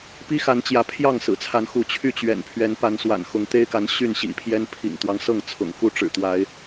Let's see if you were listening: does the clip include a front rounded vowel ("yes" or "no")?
yes